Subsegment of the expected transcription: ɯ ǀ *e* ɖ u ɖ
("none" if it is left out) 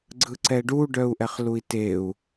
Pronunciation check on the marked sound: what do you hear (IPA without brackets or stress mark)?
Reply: ɛ